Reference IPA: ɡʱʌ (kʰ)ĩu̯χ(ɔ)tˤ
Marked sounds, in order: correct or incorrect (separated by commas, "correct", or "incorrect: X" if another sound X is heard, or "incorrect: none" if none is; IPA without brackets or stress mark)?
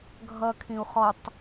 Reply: correct, correct